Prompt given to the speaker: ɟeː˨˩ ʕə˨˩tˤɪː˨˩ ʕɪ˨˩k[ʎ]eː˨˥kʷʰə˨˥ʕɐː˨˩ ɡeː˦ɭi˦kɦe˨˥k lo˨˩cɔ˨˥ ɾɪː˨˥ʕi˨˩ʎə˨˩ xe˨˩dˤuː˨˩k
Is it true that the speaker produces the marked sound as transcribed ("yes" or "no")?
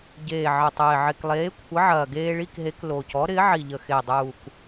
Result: no